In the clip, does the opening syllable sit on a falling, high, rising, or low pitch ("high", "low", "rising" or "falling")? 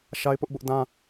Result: high